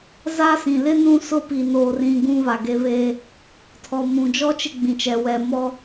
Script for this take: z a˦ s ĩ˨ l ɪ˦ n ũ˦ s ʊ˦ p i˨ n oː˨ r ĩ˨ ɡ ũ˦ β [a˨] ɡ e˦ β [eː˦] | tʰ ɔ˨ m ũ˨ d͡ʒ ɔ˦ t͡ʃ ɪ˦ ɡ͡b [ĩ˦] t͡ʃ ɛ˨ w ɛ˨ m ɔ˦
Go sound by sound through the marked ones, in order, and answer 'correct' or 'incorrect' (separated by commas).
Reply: correct, correct, incorrect